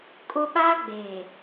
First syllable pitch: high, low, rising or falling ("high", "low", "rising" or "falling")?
high